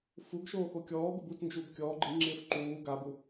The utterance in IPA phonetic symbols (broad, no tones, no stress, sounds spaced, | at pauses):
f u ɡ ʃ oː x o kʲ ɔː b ɪ b u t n d͡ʒ uː b kʲ ɔː ɡ͡ǃ i ŋ͡ǁ ɪː f ǃ uː ɡ a b u